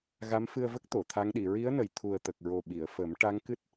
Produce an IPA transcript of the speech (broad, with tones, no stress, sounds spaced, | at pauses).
ɣ a˧˥ m f ɨ˧ ə̯ v ə˦˥ k̚ t̪ o˨˩˨ t̪ʰ a˧˥ ŋ ɗ i˨˩˨ ɹ i˧˥ ə̯ n ə˨˩˨ j t̪ʰ u˨˩ ə̯ t̪ ə˨˩ k̚ ɹ o˨˩ ɓ i˨˩˨ ə̯ f ə˨˩˦ m ʈ a˧˥ ŋ k ɨ˦˥ t̚